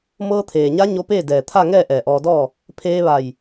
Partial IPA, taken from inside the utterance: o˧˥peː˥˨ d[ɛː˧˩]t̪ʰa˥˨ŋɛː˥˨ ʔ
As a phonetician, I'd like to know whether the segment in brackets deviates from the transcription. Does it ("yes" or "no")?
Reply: yes